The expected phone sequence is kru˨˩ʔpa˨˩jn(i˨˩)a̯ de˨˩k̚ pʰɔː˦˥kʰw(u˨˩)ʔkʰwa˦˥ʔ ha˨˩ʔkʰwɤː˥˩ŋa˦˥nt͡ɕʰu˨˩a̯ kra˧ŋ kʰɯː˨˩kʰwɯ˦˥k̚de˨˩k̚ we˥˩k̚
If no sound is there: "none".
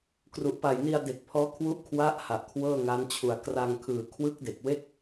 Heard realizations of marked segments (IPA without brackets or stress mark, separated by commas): i˧, u˦˥